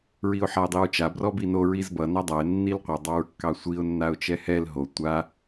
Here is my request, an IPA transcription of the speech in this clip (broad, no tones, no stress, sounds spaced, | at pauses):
ɹ i ʊ̯ ħ a ɪ̯ dˤ i ɹ t͡ʃ a b r ɔ b i n o ɹ i z b ʌ n a dˤ a ɪ̯ nː i l qʷ ʌ dˤ ɑ ɹ kː ɑ sʷ i ʊ̯ nː a ʊ̯ t͡ʃ ɛ h ɛ l ɦ o tʷ a